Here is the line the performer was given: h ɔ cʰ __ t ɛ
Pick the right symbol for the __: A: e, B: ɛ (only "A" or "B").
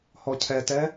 B